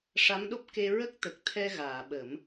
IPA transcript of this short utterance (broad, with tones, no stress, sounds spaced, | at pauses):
ʂ a˧˥ m ɗ o˦˥ p̚ k e˧ ɹ ə˦˥ k̚ t̪ ə˨˩ k̚ t̪ʰ ɛ˧ ɣ aː˨˩˨ ɓ ə˨˩˦ m